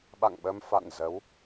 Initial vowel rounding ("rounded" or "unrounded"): unrounded